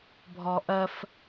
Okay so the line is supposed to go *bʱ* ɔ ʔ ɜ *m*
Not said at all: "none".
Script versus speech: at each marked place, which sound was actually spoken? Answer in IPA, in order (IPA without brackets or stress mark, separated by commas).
bʱ, f